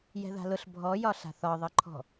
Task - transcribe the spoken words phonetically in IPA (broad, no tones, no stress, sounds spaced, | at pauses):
j ɛ̤ ð a̤ l ʊ ɬ bʱ ɔ j ɒ ɬ a̤ θ ɒ ðˤ ʌ ǃʰ ɔ̤